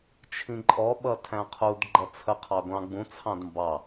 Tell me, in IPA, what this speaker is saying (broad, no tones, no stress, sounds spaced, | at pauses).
t͡ʃʰ ĩ ǃʼ ɔ ɓ ʌ tʰ æ̃ qʰ u d ɡ͡ǃ ʌ t͡sʰ ə qʰ ɑ ɡʷ ɑ̃ ɡ͡b ũ t͡sʰ ɑ̃ d m b ɑ